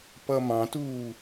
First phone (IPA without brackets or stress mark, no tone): p